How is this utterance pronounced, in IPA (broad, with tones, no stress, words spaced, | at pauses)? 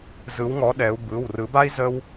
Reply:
zɯ˨˦w ŋɔ˨˦ ɗɛ˨˦u̯ bɯ˩˧˩w rɯ˨˩˦ba˦i̯ zə˦w